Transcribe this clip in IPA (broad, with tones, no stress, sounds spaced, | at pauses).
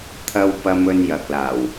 t̪ʰ ɐ˥ w p ɐ˧ m ɵ˧ n j ɐ˨ k̚ l aː˨˩ w